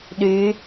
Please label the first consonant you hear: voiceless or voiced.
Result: voiced